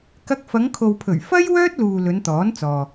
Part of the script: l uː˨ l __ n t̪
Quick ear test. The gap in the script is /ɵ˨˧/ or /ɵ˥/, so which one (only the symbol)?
ɵ˨˧